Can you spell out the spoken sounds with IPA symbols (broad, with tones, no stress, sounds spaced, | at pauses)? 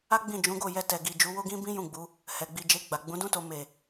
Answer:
a˦ ɡ͡b ĩ˦˨ d͡ʒ ũ˨˦ ɡ o˦˨ j ɛ˧ t ɛ˨ ɡ i˨ d͡ʒ u˨˦ w o˦ ɡ ĩ˦ b ĩ˦ j ũ˦˨ ɡ͡b u˨˦ | h ɛ˨ ɡ͡b i˧ d͡ʒ e˧ ɡ͡b a˨ ɡ͡b ũ˨˦ d ũ˦ t o˧ m e˨